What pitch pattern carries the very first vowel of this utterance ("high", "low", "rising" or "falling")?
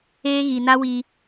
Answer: high